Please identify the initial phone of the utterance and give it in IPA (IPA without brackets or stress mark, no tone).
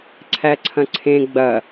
ǀʰ